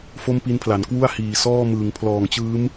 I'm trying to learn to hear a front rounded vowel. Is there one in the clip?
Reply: no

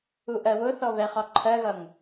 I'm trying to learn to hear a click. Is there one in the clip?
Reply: yes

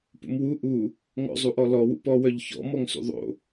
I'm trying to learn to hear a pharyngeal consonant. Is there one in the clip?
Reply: no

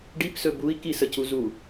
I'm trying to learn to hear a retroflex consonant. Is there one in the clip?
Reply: yes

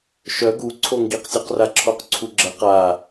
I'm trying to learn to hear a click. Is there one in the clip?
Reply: yes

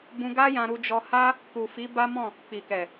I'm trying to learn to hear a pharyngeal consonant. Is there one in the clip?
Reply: no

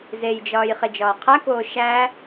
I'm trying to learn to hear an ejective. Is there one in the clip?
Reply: no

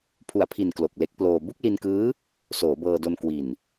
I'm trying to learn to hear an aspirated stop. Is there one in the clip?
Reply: yes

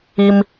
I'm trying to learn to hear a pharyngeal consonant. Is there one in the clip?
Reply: no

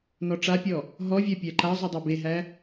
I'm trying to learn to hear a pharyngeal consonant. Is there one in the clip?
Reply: no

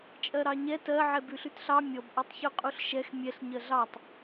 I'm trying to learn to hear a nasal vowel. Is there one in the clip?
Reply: no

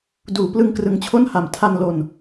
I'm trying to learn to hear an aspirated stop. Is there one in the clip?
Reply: yes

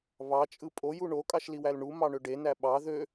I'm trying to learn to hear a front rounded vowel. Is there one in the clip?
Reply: yes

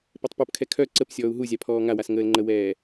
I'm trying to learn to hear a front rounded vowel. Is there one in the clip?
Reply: yes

